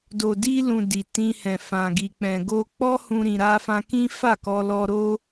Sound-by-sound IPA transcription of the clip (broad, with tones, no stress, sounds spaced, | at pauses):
d o˨ d i˧ l ũ˨ d i˨ t ĩ˧ h ɛ̃˨ f ã˨ ɡ i˨ k͡p ɛ̃˨ ɡ o˧ k͡p ɔ˦ h ũ˧ ɾ ĩ˧ ɾ a˦ f ã˦ k ĩ˦ f a˦˨ k ɔ˧ l ɔ˧ ɾ o˦